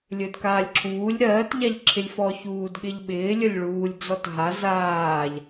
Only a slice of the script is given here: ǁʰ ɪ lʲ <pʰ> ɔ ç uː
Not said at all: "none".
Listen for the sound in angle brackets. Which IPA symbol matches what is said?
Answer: f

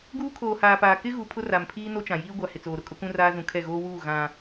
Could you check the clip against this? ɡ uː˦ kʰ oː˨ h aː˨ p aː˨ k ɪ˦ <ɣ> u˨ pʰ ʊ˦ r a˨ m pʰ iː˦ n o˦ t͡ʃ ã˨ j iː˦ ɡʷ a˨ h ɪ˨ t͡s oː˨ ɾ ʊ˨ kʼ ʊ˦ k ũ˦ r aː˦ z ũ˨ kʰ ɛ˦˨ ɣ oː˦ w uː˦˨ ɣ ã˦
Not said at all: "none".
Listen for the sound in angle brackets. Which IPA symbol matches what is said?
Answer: ɣ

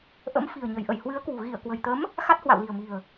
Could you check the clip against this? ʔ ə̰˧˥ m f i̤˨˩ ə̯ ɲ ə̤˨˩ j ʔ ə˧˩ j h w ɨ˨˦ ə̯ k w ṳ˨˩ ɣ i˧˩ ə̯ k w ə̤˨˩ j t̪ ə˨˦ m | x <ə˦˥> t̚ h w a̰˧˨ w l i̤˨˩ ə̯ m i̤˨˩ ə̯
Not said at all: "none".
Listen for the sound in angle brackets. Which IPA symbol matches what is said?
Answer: a˦˥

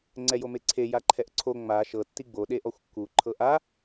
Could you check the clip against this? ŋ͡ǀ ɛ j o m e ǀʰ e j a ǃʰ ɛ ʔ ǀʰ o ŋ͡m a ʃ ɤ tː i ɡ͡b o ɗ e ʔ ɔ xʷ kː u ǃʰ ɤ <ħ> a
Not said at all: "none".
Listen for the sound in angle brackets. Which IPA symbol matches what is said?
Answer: ʔ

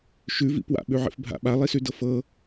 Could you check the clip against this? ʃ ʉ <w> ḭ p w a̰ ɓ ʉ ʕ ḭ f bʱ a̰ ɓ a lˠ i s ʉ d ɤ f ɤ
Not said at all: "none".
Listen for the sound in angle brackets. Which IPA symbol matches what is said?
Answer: v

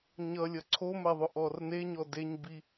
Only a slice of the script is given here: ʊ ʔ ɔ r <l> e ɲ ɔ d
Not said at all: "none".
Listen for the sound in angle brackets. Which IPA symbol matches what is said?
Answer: n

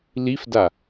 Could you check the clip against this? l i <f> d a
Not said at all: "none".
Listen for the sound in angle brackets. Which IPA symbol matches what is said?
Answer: f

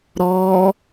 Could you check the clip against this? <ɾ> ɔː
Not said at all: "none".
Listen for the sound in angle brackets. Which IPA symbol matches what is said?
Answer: ɾ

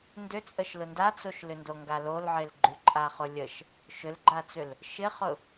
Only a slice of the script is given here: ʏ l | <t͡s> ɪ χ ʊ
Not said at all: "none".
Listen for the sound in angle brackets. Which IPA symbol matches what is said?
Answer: ʃ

